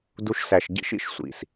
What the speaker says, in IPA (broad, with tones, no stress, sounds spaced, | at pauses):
d u˦ ʃ s æ˧ ʃ ɟ ḭ˦ ʃ ḭ˧ ʃ sʷ ḭ˨ s